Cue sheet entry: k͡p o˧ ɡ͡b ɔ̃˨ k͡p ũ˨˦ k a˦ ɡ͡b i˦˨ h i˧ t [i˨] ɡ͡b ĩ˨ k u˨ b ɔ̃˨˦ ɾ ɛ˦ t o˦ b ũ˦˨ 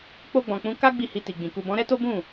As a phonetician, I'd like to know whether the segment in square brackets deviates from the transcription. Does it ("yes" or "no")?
no